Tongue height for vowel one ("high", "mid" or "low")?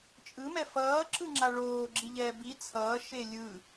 high